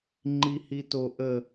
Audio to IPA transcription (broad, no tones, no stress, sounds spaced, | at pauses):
ŋ͡ǃ i h i t o ʔ ə